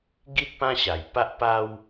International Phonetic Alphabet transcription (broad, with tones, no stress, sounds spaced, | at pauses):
ɡ i˦ t̚ p ã˦ ɕ a˨˩ j p a˦ ʔ p a˦ w